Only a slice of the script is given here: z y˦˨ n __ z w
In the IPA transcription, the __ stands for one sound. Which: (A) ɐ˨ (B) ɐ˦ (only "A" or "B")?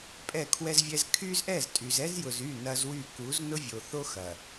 B